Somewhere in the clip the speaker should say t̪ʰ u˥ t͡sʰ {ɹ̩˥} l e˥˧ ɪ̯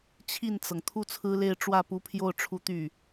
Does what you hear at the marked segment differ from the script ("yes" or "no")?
no